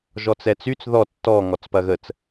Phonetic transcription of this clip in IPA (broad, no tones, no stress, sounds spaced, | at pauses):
ʒ ɔ t͡s ɛ t͡s y t͡s ð ɔ tː ɔ ŋ ɔ t͡s p ɐ ɣ ə t͡s